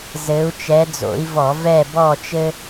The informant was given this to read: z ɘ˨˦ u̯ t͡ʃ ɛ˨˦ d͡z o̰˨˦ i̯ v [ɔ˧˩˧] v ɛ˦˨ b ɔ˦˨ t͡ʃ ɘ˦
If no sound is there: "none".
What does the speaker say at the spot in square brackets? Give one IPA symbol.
ɔ˧˩˧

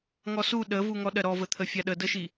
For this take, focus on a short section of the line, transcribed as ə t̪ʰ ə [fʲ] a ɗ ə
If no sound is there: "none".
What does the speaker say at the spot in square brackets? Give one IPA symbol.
fʲ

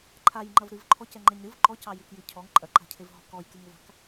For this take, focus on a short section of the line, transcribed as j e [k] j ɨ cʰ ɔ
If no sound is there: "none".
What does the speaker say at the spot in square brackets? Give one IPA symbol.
k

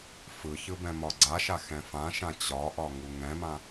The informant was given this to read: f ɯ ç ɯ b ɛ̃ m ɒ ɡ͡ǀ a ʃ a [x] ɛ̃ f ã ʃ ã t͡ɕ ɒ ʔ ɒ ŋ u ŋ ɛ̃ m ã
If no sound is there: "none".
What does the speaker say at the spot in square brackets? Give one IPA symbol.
x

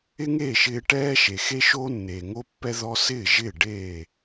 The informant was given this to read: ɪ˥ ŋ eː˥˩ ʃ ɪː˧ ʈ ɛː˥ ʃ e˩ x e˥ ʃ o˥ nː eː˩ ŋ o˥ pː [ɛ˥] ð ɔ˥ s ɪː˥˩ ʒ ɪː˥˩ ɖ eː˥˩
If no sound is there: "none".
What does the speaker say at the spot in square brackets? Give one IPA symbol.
ɛ˥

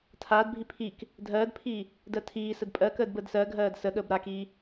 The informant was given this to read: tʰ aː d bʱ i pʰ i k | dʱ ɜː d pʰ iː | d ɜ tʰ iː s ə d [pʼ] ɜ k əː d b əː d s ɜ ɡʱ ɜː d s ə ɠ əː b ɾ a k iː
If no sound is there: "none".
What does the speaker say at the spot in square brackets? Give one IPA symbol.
pʼ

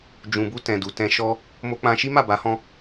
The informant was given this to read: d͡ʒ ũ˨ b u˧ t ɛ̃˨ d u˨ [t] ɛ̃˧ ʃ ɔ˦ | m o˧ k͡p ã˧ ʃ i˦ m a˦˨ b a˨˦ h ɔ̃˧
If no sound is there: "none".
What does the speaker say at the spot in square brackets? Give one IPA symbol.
t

